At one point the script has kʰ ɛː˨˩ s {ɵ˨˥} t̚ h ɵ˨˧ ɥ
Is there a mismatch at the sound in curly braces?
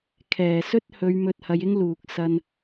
yes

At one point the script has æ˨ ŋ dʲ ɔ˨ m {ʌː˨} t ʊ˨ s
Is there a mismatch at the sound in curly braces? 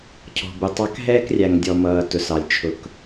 no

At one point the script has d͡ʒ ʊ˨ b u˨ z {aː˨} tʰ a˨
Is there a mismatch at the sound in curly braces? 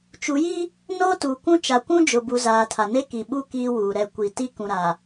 no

